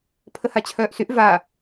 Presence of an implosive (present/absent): absent